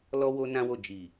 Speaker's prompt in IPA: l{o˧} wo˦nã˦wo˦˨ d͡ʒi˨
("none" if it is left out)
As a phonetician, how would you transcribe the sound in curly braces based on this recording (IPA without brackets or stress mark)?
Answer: ɔ˧